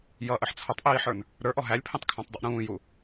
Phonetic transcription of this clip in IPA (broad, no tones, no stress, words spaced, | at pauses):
jʌʔəħ t͡sʰʌtˤʔiːħə˞n | ɾə˞ʔɔ ɦælʲpʰĩtˤkʰæ̃tˤdˤʊʔ ɾũːju